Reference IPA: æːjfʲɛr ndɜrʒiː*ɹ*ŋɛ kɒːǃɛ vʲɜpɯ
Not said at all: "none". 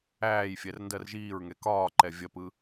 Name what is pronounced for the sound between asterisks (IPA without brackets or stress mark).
ɹ